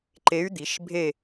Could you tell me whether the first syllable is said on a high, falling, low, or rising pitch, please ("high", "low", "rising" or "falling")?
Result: rising